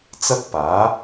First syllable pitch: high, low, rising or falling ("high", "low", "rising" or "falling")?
high